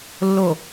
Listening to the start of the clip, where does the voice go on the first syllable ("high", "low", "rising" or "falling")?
low